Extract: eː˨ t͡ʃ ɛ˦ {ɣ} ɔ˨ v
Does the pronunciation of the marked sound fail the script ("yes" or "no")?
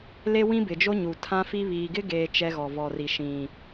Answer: no